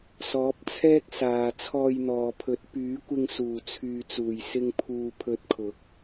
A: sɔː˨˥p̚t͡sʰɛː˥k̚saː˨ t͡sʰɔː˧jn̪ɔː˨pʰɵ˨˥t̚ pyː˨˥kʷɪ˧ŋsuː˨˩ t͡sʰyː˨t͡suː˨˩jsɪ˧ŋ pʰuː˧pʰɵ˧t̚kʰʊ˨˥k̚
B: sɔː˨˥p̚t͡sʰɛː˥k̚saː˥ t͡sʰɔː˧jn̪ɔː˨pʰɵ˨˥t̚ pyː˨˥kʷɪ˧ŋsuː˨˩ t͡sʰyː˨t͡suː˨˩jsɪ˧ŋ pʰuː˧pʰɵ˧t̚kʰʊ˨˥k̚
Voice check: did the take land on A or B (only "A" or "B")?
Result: A